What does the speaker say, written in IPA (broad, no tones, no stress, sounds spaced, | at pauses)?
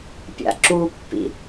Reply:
pʲ a̰ ǁ u pː ḭ